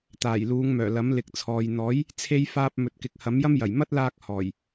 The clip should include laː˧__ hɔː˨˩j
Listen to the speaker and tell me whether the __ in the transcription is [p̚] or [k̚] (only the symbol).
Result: k̚